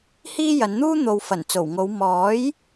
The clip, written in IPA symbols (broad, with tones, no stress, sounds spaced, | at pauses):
h iː˥ j ɐ˨˧ n n̪ uː˥ n̪ o˨ w f ɐ˨˩ n t͡s o˨˩ w ŋ o˨˧ w m ɔː˨˥ j